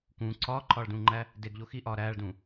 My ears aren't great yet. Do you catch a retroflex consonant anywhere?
yes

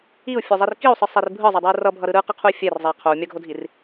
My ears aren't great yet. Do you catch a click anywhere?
no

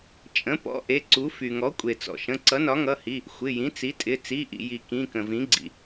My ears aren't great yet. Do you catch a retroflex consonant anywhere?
no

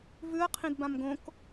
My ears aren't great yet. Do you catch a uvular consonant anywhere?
yes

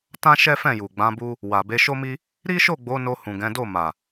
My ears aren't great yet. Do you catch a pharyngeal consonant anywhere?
no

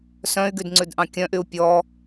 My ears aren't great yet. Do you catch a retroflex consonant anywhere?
no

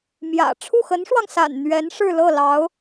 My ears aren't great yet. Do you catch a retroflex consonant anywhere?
yes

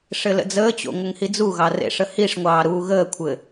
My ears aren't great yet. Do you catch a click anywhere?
no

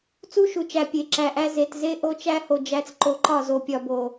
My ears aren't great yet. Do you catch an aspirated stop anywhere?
no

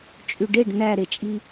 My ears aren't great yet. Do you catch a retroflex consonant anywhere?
yes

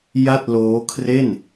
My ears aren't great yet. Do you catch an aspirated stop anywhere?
yes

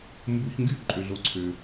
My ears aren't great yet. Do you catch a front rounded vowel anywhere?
yes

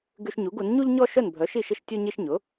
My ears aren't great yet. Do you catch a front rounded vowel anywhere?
yes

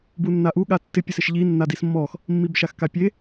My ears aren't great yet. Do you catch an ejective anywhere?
no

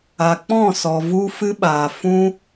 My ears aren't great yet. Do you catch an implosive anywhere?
yes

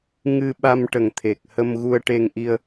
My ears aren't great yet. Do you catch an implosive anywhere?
yes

